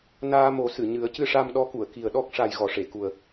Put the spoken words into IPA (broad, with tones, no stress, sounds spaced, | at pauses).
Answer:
n aː˧ m o˨˩˦ s ɨ˨˩˨ ɲ ɨ˨˩˦ ə̯ c ɨ˧ ʂ a˧ m ɗ ɔ˧˥ k u˨˩˨ ə̯ k i˨˩ ə̯ ɗ ɔ˦˥ k̚ ʂ a˨˩ j ɣ ɔ˨˩˨ ʂ e˨˩˨ k u˨˩ ə̯